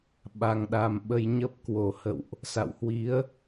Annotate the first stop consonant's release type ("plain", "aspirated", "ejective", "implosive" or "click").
implosive